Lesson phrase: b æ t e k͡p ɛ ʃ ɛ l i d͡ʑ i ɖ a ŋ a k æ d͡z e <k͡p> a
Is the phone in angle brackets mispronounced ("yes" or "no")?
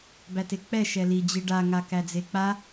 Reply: no